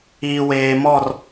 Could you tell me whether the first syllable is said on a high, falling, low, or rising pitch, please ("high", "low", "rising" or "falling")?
low